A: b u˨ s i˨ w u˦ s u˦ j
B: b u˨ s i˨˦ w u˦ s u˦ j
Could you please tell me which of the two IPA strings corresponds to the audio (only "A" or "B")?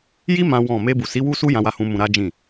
B